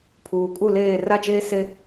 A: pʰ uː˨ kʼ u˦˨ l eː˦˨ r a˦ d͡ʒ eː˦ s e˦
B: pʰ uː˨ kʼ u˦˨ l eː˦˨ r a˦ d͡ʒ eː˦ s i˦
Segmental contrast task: A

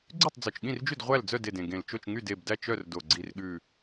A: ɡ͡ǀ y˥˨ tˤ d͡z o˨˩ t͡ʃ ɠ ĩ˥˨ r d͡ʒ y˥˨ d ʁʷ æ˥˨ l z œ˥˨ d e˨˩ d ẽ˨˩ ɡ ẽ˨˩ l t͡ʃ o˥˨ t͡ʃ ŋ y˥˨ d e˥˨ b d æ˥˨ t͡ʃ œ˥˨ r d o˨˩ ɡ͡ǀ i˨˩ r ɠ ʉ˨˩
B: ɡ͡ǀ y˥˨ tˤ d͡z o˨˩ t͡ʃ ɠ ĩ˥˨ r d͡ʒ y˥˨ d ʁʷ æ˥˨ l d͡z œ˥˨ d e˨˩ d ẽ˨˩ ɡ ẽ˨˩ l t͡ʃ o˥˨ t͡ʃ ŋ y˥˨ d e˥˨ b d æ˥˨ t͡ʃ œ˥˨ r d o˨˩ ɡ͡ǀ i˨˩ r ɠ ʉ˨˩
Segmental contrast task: B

